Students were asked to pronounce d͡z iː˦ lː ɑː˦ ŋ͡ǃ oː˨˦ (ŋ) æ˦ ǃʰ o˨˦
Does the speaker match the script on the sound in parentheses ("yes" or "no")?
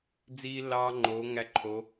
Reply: yes